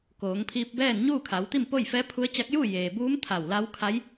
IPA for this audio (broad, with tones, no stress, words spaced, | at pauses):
koː˩˧ŋpʰiː˧p̚bɛː˥˨n ɲuː˥˨kʰa˩˧wt̪i˥˨m po˥˨jfɛː˧˥pʰu˧˥ə̯t͡ɕa˧˥k̚ ju˥˨jeː˩buː˧˥m t̪ʰa˧˩wla˧˥wkʰa˧˥j